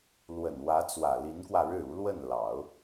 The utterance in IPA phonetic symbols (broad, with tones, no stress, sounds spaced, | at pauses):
l w ə˨˩ n w ä˧˥ t͡s w ä˨˩ l i˧˥ n k w ä˧ ɻ ɻ̩˥˩ u˧˥ l w ə˥˩ n l ɑ˨˩˦ ʊ̯